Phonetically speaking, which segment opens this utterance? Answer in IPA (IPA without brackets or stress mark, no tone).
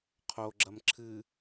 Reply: qʰ